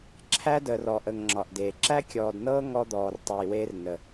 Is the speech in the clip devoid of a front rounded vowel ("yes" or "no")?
no